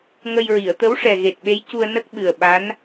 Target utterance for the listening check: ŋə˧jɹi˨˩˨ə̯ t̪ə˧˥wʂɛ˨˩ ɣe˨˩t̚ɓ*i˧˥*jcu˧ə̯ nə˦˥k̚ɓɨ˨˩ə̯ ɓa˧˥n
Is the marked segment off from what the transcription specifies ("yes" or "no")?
yes